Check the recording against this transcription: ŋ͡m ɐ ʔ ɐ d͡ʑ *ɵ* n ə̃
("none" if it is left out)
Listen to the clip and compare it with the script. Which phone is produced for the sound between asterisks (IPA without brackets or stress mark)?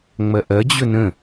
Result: ɵ